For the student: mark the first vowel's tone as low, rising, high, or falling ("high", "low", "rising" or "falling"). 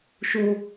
high